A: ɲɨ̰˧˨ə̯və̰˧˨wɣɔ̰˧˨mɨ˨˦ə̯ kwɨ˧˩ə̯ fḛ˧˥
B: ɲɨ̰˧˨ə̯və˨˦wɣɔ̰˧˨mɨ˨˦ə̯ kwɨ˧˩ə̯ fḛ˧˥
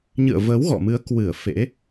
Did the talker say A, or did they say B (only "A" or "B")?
B